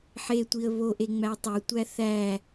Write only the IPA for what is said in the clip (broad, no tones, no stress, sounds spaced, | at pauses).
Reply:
ħ e tʷ i ə̯ β o ʔ e ŋ͡m æ tˤ o tʷ æ θ æ